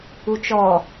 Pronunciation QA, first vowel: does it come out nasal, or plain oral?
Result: oral